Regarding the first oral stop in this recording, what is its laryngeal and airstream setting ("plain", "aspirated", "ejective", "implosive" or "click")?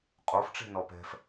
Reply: ejective